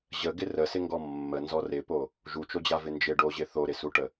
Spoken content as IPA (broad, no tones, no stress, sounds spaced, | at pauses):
ʑ ə ɡ ɪ r ə s ɪ ŋ ɡ ɔ mː ə n z ɔ r ɪ p o | ʒ u t͡ʃ o d͡ʑ a v ɪ n d͡ʒ ɪ ɖ o ʑ ɪ θ o ɾ ɪ s u ʈ ə